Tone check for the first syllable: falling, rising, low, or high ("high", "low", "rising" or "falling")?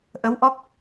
rising